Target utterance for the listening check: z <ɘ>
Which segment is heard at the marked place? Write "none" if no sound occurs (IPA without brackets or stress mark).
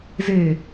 e